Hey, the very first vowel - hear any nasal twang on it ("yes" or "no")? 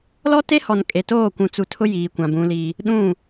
no